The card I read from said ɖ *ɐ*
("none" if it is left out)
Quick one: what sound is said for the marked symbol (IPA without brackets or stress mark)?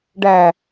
æ